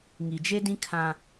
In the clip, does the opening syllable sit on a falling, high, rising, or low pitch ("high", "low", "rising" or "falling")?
low